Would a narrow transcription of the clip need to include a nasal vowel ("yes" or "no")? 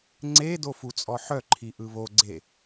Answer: no